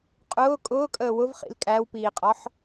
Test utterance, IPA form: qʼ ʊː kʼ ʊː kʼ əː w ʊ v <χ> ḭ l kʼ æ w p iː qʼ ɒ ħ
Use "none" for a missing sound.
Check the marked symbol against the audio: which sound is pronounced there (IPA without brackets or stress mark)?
χ